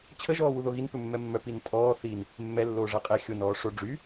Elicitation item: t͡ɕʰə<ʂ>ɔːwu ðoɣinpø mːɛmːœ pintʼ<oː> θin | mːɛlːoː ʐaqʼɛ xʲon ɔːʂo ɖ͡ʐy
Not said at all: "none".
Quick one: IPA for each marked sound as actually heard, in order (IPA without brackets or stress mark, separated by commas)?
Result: ʒ, ɔː